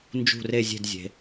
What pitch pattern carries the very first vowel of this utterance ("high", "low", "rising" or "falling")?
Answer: falling